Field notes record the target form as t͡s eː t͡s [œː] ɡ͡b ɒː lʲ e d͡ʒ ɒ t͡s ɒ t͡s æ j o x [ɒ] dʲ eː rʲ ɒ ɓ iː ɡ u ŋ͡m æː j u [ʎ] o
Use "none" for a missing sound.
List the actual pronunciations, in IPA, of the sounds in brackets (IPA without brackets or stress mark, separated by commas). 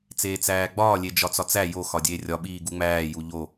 æː, ɒ, ʎ